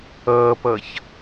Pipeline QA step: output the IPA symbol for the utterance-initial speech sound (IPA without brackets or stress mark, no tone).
ʌː